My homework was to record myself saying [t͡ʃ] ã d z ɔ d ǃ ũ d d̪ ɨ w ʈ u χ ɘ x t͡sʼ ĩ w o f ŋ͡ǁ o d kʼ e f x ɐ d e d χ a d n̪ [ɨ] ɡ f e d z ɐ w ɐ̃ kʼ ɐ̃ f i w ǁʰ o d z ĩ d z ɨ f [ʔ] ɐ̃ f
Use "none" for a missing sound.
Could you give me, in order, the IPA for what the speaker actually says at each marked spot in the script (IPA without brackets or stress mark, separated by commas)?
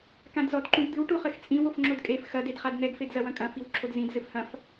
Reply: k, ɛ, h